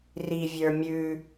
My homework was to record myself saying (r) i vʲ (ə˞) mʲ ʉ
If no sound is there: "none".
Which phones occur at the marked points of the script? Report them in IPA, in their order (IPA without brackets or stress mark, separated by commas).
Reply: r, ə˞